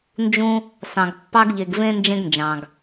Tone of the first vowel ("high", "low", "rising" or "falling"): high